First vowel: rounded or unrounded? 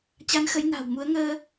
unrounded